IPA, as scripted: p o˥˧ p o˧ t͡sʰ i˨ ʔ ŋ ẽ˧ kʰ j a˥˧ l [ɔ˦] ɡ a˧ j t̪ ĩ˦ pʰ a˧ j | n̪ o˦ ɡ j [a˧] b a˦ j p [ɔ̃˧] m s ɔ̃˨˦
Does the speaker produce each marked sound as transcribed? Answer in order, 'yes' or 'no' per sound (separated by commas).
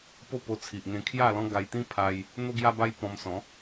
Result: no, no, yes